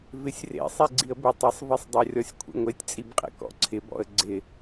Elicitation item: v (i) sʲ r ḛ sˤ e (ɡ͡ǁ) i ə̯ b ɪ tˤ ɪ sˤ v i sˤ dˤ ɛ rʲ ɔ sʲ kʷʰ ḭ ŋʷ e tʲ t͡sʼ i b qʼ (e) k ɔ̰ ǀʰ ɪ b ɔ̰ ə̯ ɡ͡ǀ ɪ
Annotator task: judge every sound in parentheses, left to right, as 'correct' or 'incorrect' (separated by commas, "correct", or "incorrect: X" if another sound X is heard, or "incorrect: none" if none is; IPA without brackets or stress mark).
incorrect: ɪ, incorrect: ɡ͡ǀ, incorrect: ḛ